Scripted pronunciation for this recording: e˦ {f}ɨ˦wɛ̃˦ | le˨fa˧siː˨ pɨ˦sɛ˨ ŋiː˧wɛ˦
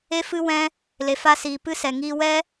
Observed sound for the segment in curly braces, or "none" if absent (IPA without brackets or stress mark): f